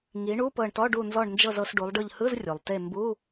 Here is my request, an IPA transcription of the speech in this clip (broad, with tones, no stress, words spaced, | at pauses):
ŋi˩˧ ɳu˧˥˧pɤ˧˩ɳtɔ˧˥˧ ɖu˧˩nzɔ˧˩ɳ nd͡ʒɤ˧˩zɤ˩˧s ɖu˩˧lˠɖɯ˧˩ʎ hɯ˧˥˧zrʲu˩lˠte˧˩ mbu˧˥˧